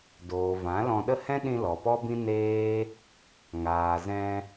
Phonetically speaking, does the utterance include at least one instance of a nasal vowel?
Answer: yes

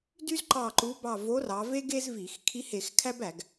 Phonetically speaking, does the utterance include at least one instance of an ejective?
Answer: no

